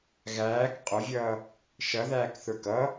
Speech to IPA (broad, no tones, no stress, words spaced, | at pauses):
ɣæːk qʼʊvʲʌː | ʃʌðæːkθə˞k ʌ